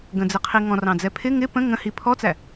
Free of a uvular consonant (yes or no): no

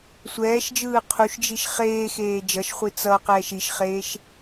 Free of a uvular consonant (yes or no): no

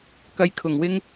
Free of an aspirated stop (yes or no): no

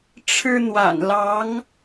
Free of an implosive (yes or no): yes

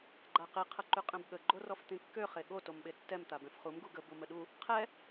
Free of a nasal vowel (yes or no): no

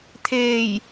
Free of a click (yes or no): yes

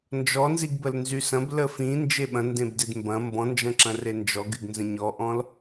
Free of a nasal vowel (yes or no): no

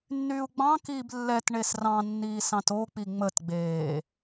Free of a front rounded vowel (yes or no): no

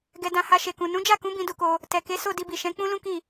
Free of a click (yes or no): yes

